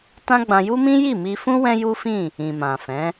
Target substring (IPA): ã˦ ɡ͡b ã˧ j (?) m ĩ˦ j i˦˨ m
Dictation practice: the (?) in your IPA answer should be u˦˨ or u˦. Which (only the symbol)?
u˦